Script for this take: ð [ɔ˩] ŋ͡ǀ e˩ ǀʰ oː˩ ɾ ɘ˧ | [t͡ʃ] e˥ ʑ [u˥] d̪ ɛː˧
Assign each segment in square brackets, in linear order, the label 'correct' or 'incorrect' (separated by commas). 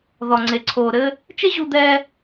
correct, correct, incorrect